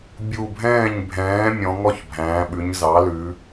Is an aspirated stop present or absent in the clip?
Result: absent